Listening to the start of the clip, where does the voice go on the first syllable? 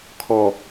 low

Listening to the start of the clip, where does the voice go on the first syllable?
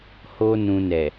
high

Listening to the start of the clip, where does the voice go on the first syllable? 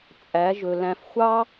rising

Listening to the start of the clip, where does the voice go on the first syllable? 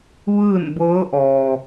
falling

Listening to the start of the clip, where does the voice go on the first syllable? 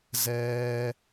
high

